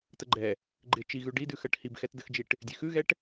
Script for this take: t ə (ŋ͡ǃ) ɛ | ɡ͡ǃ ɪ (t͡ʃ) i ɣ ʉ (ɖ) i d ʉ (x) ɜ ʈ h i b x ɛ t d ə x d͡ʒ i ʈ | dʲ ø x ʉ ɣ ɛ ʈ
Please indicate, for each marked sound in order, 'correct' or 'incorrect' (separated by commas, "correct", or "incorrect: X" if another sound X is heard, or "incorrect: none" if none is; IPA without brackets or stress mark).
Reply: incorrect: ɡ͡ǃ, correct, correct, correct